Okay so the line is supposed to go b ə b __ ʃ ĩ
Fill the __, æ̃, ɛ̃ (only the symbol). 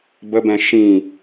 ɛ̃